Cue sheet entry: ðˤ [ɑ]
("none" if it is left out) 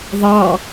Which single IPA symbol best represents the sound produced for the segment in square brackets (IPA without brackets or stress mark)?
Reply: ɑ